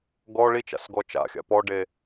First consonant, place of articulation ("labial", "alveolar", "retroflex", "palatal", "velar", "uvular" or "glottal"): velar